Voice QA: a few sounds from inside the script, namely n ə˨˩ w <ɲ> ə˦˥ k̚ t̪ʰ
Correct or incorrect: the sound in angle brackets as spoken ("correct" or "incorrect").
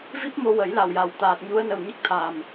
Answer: correct